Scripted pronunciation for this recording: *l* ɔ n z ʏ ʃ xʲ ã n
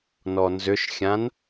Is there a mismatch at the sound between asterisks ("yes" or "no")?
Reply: yes